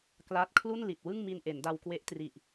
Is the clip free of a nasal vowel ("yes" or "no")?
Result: yes